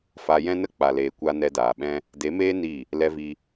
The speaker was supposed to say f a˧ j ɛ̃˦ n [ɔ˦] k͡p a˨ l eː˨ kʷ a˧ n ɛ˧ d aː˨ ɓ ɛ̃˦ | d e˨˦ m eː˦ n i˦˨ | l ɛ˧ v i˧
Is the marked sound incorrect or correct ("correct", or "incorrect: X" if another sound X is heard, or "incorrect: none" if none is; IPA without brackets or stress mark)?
incorrect: ə˦